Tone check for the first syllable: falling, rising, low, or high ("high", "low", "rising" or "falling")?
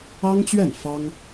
high